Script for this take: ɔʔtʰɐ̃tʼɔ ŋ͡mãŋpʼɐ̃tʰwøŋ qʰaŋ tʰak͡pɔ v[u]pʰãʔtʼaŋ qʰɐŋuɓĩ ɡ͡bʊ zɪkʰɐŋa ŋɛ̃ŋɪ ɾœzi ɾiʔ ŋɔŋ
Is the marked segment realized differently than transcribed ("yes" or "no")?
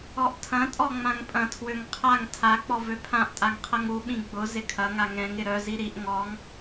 yes